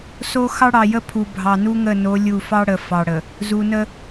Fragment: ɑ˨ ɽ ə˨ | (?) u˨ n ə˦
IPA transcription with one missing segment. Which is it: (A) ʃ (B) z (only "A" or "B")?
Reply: B